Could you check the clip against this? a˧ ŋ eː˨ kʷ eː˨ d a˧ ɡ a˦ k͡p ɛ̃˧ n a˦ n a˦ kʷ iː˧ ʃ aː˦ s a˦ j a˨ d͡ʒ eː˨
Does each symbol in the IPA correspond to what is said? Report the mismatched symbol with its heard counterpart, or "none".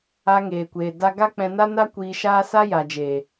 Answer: none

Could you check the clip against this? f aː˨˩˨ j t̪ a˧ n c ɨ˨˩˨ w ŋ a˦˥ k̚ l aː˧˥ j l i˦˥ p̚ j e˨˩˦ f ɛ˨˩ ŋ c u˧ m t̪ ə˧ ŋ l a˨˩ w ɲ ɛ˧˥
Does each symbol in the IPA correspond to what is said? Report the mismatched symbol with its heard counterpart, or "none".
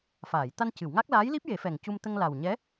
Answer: none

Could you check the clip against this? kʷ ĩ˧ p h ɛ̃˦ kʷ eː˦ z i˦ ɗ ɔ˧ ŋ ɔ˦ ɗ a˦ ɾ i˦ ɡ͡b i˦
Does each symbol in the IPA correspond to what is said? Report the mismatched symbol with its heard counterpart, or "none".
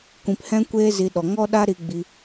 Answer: none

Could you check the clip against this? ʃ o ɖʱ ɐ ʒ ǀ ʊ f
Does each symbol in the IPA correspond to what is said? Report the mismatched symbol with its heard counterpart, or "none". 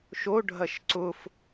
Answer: ʒ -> ʃ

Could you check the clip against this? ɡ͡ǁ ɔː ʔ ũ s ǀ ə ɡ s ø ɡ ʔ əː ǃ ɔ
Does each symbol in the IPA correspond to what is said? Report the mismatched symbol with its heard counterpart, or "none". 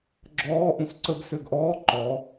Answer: əː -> ɔː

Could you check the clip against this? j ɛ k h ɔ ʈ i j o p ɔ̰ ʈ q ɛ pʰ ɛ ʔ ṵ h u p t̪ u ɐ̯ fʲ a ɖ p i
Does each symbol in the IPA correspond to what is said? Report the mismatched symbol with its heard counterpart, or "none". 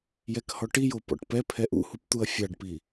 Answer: q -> p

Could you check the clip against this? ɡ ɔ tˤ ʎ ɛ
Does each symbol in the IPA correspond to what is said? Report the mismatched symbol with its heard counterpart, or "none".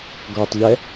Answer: none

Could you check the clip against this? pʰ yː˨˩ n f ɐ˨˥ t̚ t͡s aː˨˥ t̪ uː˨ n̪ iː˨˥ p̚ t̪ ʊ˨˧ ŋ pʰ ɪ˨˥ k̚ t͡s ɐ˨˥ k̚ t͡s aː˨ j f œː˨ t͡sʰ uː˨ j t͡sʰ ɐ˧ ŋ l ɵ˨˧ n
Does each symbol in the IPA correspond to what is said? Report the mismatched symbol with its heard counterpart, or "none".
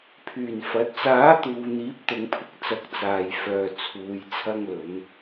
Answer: none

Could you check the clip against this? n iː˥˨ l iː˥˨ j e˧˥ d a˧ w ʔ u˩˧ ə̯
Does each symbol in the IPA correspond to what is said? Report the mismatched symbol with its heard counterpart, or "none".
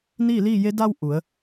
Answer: none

